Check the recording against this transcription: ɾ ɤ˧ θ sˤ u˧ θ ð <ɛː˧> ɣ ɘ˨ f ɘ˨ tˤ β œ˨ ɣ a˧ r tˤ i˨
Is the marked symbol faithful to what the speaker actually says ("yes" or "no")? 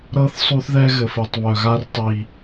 no